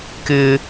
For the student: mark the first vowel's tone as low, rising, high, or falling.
high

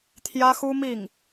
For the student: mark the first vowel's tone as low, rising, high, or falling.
high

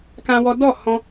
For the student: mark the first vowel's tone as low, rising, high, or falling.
high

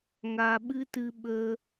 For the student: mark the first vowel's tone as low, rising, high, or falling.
low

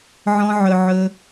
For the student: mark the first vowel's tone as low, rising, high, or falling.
high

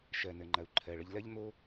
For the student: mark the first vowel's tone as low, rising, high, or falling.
low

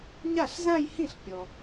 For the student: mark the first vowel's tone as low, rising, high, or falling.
falling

